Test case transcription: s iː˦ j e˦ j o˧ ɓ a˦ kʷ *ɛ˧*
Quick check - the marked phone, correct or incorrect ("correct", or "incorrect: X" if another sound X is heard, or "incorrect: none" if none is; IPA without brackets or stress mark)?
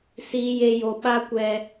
correct